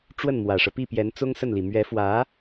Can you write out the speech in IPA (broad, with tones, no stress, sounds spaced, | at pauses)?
ʈ͡ʂ w ə˥˩ n m w ä˨˩ ʂ ɤ˦ p i˥˩ p j ɛ˧˥ n t͡s ʊ˥ ŋ s ə˥˩ n l i˨˩ m ɥ ɛ˧˥ f w ä˧˥